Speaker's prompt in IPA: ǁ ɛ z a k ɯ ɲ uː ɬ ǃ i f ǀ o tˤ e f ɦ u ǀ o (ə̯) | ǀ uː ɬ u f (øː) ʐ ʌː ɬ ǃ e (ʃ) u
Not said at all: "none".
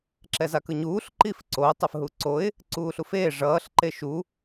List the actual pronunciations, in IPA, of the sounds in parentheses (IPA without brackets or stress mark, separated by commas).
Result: ɪ̯, eː, ʃ